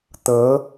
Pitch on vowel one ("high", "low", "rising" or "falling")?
rising